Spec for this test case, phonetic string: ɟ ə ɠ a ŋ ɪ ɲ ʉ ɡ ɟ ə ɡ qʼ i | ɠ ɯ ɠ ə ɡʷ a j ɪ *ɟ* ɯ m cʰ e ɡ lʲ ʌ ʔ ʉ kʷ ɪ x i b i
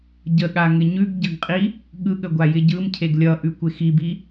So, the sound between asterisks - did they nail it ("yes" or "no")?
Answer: yes